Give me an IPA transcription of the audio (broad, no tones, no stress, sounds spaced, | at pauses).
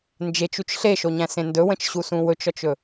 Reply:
n d͡ʒ e t͡ʃ u t͡ʃ ɬ e ʃ o ɲ æ̃ s ẽ n d ɵ w ə̃ t͡ʃ ɕ u s ũ w ɵ t͡ʃ ɔ t͡ʃ ɵ